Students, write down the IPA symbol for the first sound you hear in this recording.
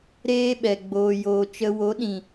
ɾ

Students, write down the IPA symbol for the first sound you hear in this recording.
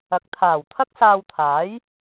ɐ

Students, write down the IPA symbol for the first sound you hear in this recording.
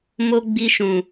m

